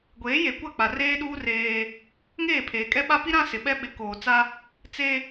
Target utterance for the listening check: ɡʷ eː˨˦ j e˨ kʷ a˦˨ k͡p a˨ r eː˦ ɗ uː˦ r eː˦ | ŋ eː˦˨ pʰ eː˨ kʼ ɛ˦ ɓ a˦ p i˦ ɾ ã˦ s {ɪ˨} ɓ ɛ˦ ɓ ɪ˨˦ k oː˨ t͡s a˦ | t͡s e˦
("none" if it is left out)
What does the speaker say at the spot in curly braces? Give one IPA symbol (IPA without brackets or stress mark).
ɪ˨